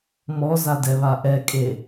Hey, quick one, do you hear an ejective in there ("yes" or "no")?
yes